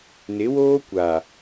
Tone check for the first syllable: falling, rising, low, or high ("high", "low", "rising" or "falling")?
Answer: rising